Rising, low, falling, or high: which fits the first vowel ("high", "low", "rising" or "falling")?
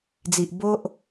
low